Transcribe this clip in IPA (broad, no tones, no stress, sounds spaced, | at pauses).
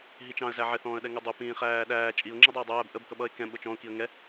ɦ i t͡ʃ ɑ̃ ə̯ z æ ʕ ɪ θ ɔ̃ː ə̯ ɗ ɛ ŋ ʊ dˤ ʊ p ĩː χ æː ɗ æː t͡ʃʼ i ʊ̯ ŋ͡ǁ i dˤ ɜ ɪ̯ dˤ æː b ʔ ə b k ʌ ɓ ʌ ɪ̯ k ɛ̃ ɓ ʊ t͡ʃ ɔ̃ ʊ̯ k i ə̯ ŋ ɛ